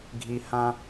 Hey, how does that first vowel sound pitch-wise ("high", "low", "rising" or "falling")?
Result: low